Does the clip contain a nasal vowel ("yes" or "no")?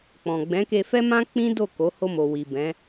yes